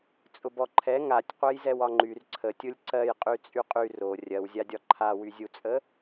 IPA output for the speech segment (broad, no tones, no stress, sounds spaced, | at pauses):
t͡sʼ ʊ b ɔ ǃʰ ɛ ŋ a tʲ qʷ ɛ j z ɛ w ɒ ŋ͡ǃ y r ǀʰ ə tʲ ʊ lʲ ǀ ɜ j qʼ y t͡sʼ y qʼ y r o rʲ ɜ w zʲ a dʲ ɒ ǃʰ a w y zʲ u t͡sʼ ə